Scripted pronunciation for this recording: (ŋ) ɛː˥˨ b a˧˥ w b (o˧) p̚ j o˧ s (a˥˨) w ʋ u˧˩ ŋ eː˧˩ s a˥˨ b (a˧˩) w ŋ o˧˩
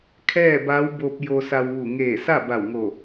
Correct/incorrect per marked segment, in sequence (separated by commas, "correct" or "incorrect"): incorrect, correct, incorrect, correct